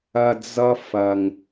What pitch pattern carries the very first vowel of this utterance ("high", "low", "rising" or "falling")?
low